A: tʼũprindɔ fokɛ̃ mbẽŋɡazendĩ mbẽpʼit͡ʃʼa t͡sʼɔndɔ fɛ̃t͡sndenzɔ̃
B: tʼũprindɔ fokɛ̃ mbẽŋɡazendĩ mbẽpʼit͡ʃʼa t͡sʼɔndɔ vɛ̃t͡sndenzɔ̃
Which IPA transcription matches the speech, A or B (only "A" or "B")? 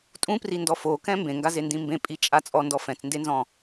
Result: A